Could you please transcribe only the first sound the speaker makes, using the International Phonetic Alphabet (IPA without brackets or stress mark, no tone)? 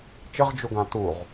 t͡ʃ